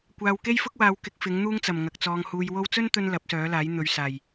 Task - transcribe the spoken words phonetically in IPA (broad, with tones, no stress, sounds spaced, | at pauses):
kʷ aː˧ w k e˥ j f ʊ˥ k̚ w aː˧ w k ɪ˧ k̚ f ɪ˨˥ ŋ n̪ uː˥ ŋ t͡s ɐ˨˩ m ŋ ɐ˨ k̚ t͡s ɔː˧ ŋ h uː˧ j w o˥ w t͡s ɵ˥ n t̪ ɵ˧ n l ɐ˨˥ p̚ s œː˨˥ l aː˨˥ j n̪ ɵ˨ ɥ s aː˨˩ j